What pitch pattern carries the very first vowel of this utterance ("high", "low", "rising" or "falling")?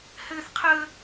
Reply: high